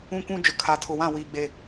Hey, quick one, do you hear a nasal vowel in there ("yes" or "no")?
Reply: yes